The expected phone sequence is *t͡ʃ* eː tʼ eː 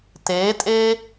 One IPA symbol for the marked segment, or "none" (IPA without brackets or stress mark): t